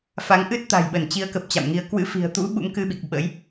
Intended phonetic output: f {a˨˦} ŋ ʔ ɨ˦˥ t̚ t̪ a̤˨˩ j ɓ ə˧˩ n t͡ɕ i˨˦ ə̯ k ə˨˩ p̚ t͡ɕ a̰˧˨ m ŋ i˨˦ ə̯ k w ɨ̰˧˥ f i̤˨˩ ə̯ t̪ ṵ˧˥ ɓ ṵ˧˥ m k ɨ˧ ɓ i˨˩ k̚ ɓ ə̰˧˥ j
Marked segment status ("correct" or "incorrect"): correct